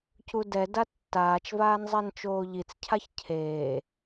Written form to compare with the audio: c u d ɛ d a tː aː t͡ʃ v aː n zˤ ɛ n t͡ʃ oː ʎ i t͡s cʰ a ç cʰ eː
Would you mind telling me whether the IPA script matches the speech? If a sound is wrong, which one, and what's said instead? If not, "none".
none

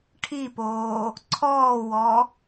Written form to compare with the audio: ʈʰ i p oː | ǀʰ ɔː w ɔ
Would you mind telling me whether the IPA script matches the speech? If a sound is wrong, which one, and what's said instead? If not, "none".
none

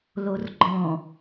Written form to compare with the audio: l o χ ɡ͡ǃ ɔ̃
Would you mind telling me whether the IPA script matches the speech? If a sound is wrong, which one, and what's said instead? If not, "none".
χ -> r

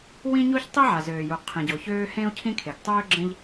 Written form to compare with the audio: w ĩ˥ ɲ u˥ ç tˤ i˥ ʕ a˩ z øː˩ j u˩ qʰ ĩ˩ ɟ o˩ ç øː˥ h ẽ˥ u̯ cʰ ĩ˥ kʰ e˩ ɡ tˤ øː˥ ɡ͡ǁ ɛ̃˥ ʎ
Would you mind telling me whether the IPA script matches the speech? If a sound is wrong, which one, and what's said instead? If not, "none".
ɛ̃˥ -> ẽ˥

